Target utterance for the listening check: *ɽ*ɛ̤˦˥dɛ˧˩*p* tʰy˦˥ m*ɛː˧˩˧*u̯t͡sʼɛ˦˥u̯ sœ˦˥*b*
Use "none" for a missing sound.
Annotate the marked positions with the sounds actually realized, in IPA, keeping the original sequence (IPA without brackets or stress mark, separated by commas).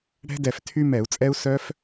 ɽ, f, ɛ˧˩˧, f